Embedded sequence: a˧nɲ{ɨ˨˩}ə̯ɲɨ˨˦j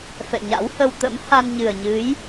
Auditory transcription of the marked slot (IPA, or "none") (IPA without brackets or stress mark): ɨ˨˩